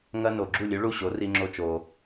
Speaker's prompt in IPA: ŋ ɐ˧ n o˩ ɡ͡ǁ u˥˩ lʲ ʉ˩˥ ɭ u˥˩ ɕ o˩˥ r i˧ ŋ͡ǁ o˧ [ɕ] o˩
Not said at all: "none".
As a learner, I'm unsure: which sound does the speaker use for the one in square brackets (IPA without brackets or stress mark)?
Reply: t͡ʃ